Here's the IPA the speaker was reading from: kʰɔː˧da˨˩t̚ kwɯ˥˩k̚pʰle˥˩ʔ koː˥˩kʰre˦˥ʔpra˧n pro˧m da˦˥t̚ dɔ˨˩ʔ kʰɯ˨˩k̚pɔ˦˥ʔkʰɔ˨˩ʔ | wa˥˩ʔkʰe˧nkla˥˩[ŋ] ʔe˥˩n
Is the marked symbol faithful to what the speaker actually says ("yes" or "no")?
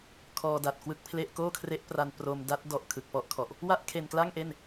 yes